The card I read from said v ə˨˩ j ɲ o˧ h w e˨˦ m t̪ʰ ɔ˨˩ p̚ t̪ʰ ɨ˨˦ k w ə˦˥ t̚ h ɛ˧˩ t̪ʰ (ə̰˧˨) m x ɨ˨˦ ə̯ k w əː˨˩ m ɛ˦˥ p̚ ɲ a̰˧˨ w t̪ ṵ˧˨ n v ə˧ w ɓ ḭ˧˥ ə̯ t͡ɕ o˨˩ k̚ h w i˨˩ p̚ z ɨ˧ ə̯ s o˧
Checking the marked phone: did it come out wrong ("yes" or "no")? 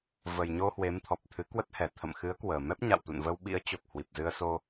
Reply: no